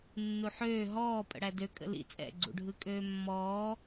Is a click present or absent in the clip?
present